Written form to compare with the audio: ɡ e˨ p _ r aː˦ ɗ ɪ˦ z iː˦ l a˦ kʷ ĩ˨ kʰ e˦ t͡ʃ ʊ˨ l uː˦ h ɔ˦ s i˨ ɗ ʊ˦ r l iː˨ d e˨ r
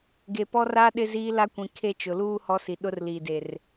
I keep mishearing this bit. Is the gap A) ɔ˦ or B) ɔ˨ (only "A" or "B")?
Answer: A